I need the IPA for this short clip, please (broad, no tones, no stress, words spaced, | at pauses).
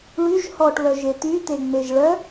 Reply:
ɭyʒ hɔʈβœʒe t̪yt̪eŋ͡meʒ ɭœ